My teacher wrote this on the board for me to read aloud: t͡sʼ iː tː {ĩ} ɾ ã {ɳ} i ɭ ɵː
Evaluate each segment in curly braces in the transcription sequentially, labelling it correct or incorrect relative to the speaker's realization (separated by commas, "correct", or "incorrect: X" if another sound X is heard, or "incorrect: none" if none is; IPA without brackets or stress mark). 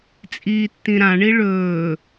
correct, correct